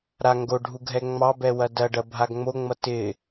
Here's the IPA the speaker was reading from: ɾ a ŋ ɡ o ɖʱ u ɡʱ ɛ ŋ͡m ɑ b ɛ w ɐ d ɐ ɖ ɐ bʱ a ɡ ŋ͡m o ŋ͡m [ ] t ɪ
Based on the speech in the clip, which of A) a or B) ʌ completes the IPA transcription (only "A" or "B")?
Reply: B